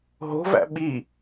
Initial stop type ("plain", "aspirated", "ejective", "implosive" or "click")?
implosive